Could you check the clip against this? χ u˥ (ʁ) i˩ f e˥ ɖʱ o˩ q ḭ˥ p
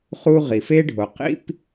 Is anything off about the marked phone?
no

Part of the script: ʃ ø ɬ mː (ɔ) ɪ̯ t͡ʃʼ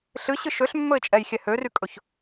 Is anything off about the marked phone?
yes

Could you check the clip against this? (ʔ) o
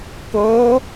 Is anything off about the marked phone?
yes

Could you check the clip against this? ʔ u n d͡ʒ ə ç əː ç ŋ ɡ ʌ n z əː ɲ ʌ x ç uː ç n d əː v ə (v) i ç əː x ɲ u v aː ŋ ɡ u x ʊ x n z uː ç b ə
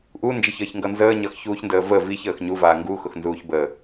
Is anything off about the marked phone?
no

